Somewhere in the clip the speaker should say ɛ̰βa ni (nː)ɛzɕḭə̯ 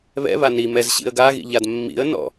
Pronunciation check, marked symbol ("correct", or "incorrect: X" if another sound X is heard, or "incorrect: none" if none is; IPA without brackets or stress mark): incorrect: m